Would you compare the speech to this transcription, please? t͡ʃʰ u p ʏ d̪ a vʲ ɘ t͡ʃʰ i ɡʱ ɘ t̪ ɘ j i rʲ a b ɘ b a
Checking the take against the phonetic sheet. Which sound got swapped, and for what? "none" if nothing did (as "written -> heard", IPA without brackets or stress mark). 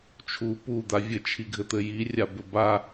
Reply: ʏ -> u